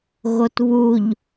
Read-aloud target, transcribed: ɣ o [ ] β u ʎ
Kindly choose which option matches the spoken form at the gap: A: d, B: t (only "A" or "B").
B